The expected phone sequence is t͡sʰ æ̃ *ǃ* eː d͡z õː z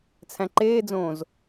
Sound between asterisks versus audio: correct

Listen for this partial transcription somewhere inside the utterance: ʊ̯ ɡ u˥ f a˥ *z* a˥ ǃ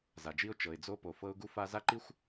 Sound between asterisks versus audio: correct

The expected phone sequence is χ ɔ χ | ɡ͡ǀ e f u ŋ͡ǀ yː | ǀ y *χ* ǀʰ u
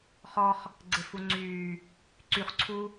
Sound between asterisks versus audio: correct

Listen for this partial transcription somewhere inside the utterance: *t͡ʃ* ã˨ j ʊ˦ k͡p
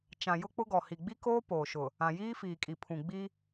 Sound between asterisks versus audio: correct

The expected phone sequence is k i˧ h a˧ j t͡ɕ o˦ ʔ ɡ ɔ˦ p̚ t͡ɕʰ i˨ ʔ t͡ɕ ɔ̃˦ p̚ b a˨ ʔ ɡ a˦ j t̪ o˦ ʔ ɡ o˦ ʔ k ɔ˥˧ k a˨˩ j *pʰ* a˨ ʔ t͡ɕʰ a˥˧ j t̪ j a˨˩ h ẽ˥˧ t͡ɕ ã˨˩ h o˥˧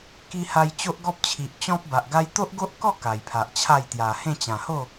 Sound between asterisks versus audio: correct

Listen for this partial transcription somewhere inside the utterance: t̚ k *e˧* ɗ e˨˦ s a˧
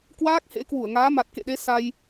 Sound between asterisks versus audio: incorrect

